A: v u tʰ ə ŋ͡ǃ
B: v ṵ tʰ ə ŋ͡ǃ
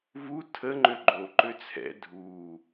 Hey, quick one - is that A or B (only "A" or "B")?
A